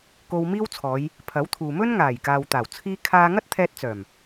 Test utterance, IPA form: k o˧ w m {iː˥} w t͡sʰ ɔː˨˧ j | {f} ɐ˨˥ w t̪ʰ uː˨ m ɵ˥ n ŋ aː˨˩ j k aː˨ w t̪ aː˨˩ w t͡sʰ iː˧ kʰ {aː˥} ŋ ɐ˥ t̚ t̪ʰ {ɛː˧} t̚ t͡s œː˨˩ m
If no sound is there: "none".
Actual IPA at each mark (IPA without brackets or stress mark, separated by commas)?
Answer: iː˥, pʰ, aː˧, ɛː˧